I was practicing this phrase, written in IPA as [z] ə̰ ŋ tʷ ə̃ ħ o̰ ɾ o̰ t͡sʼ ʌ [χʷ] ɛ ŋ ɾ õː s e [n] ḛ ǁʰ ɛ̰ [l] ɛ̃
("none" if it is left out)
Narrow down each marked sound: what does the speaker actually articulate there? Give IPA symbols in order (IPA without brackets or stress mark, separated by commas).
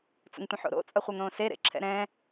t͡s, χʷ, ɾ, ɾ